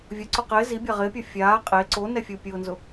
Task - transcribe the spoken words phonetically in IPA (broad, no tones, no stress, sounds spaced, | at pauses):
vʲ ʊ ǀ ʊ q ɪː z i bʲ a ʁ ɪː pʲ ɔ fʲ aː qʼ e ǀ o n ɛ fʲ u pʲ ʊː n z ʊ